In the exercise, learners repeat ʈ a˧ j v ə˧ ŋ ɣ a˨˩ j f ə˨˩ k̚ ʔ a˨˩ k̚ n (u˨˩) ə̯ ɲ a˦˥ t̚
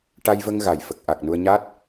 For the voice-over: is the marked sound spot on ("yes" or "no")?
no